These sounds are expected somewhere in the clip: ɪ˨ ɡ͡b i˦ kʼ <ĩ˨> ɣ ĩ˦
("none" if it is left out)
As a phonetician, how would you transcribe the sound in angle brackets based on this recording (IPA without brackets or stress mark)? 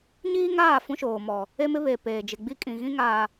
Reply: ĩ˨